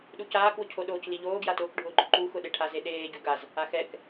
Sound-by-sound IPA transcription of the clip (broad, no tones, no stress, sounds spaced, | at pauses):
ɗ u c aː k w ʊ cʰ o ɗ oː c l i ʎ oː ɡ j a t ʊː k ɖʱ ʊː ɡ͡ǃ ʊ ǃ u x ʊ ɗ e ʈʰ a z e ɗ eː ɟ u ɡ a z | a x ɛ k